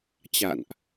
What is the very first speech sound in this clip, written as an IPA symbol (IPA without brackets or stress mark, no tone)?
t͡ɕ